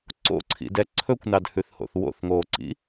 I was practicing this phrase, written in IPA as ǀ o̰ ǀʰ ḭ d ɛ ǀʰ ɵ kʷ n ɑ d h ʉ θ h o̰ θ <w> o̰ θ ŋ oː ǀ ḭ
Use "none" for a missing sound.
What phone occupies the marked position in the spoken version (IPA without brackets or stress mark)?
w